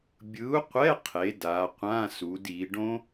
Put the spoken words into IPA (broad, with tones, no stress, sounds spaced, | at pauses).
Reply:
bʲ ɯ˨˥ u̯ qʷ ɛ˧˥˧ qʰ e˩˧ d a˩˧ qʷ ã˧˥˧ s u˩˧ d i˩˧ ɖ õ˦˥